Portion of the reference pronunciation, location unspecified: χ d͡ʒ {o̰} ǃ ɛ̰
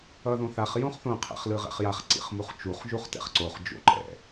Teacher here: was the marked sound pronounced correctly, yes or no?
yes